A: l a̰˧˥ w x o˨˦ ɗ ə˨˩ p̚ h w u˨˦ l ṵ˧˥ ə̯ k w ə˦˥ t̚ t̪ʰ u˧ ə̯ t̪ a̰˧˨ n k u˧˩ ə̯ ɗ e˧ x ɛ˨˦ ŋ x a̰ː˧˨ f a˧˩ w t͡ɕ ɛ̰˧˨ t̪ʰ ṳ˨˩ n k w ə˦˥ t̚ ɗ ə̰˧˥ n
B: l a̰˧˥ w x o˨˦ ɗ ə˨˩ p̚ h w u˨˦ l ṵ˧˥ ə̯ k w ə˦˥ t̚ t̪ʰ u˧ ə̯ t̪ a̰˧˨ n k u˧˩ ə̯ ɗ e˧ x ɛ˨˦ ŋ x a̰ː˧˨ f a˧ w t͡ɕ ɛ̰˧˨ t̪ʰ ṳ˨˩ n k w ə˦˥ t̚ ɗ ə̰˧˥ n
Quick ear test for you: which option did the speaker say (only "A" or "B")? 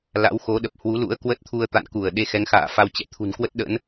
B